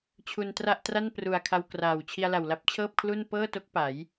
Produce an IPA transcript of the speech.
t͡ɕʰ u˧ n t r a˥˩ ʔ t r a˥˩ n p r u˨˩ a̯ kʰ a˧ w k r aː˨˩ w t͡ɕʰ i˧ a̯ l a˨˩ w l a˦˥ p̚ t͡ɕʰ ɤː˥˩ p̚ kʰ l u˥˩ n p ɤː˥˩ t o˦˥ k̚ p a˩˦ j

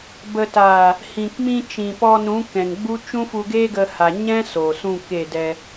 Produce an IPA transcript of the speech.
b ə˨ t aː˨ | h ĩ˨ k m ĩ˧ t͡ʃ ĩ˨ p ɔ˧ n ũ˨˦ k ɛ̃˨ ŋ ɡ͡b u˦ t͡ʃ ũ˦ f u˧ ɡ eː˦ ɡ ə˧ h a˨ ɲ ɛ̃˦ s o˨ s ũ˦˨ k e˦˨ d ɛ˧

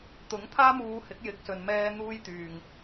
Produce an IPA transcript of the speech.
t̪ ʊ˨˥ ŋ t̪ʰ aː˥ m uː˧ h ɪ˨˥ k̚ j ɪ˨ k̚ s ɵ˨ n m ɛː˧ n̪ uː˧ j t̪ yː˨ ŋ

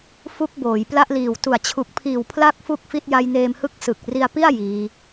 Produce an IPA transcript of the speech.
f u˦˥ k̚ b oː˩˦ j p l a˥˩ ʔ l iː˨˩ w t u˨˩ a̯ t͡ɕʰ u˨˩ k̚ pʰ iː˨˩ w pʰ l a˦˥ k̚ f u˥˩ k̚ f i˥˩ t̚ j a˦˥ j n eː˧ m h ɯ˦˥ k̚ s ɯ˨˩ k̚ r i˧ a̯ p i˥˩ a̯ j iː˦˥

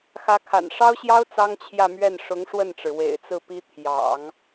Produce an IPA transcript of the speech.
x ä˧˥ kʰ a̰˨˩ n ʂ ɑ˥ ʊ̯ ɕ j ɑ˥ ʊ̯ t͡s ɑ˥ ŋ t͡ɕʰ j ä˥˧ m ɥ ɛ˥˩ n ʂ ʊ˧˥ ŋ ʂ w ə˥˩ n ʈ͡ʂ ɻ̩˩ w ḛ˨˩ ɪ̯ t͡s ɹ̩˥˩ p i˥ t̪ʰ j ɑ̰˨˩˦ ŋ

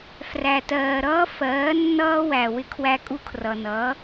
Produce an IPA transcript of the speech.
f r æ˨ t ɜː˨ ɾ ʌː˦ f ɜː˨˦ nː ʌː˦ w æ˨ w ɪ˧ kʰ w æ˧ kʼ u˧ kʰ r ʌ˨ n ʌː˨˦

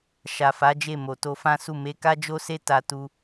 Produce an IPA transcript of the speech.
ʃ a˨ f a˨˦ d͡ʒ e˦˨ m o˨ t o˧ f ã˦ s u˦˨ m e˧ k a˦ d͡ʒ o˦ s e˦ t a˧ t u˧

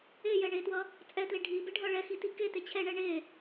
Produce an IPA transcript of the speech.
e j ɛ ɳ e t w ʌ | t͡sʼ ɛ t l e ɖʱ i b e ɖʱ ʌ ɭ ɛ x i t i k e t e t͡ɕʰ ɛ ɳ ɛ ɳ e

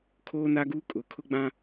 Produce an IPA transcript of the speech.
kʰ oː˦ n a˦ ɡ uː˦ kʼ ʊ˨˦ kʰ ʊ˦ ɡ͡b ã˦

